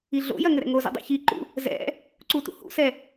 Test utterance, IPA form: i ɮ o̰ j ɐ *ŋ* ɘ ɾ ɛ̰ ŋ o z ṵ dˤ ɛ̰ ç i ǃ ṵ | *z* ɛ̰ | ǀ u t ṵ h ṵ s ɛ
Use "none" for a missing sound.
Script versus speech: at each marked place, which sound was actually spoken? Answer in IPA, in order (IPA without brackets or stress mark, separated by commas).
ŋ, z